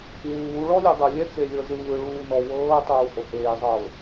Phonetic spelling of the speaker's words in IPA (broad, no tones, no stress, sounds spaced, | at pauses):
w uː ɭ ɔ lʲ o dˤ ɤ lʲ ɛ t͡s e lʲ ɤ z ɯː ɭ uː n ɔ w ɤː tˤ uː h o h eː zˤ ɤː